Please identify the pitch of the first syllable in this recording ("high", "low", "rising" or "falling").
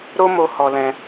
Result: high